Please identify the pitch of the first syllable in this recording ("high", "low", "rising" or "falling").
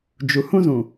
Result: low